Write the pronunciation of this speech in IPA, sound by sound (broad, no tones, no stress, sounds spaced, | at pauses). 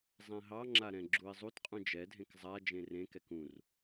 zˤ ɛ̃ ɦ ɑ ŋ͡ǁ a ɾ ɛ̃ ɡ͡ǁ u ɪ̯ zˤ u t qʼ ũ d͡ʒ ɛ dʱ ẽ k zˤ a d͡ʒ ẽ r ẽ k ɛ k ũ r